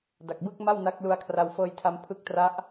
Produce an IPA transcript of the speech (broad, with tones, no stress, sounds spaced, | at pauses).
d a˨˩ k̚ b ɯ˥˩ k̚ m a˥˩ w n a˦˥ k̚ l u˧ a̯ kʰ r a˧ w f ɤː˧ j tʰ a˧ m pʰ ɯ˦˥ k̚ t r a˦˥ ʔ